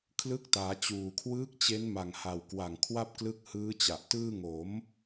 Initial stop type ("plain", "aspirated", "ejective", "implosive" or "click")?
aspirated